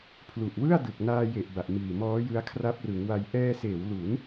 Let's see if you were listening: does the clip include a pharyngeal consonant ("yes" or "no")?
no